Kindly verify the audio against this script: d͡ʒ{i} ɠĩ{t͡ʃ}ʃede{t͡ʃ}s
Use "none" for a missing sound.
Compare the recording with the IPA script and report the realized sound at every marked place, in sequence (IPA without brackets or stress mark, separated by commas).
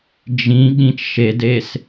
ĩ, t͡ʃ, none